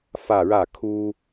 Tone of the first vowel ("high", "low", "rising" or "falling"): falling